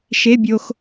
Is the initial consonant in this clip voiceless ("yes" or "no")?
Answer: yes